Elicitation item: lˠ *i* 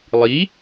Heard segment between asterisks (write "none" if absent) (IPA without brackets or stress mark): i